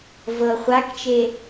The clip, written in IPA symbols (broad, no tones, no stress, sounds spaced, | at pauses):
v ɤ χʷ a k t͡ʃ e